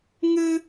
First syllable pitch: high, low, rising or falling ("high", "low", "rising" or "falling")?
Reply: high